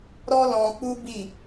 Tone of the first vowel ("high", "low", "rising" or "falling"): high